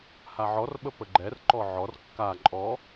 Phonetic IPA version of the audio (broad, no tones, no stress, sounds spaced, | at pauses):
h a ʕ ɔ r ɓ ə p ə ɡ͡ǃ ɛ r ǃ ɔ ʕ ɔ r kː a ǃʼ ɔ